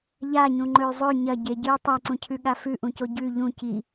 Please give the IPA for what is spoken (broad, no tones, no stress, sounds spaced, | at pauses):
ʎ a ɲ ũ ŋ͡ǃ ɵ y̯ zˤ ɵ ɲ ɐ ɟ e ɟ ɨ y̯ tˤ a ǀ ũ cʰ ʉ ɠ a f ʉ ʔ ũ c o ɟ ʉ ʎ ũ c i